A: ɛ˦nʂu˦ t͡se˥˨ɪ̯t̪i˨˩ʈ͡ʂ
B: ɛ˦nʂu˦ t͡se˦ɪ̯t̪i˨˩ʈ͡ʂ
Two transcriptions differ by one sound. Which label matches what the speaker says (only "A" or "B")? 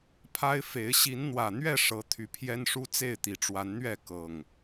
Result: A